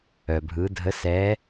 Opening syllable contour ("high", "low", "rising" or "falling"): low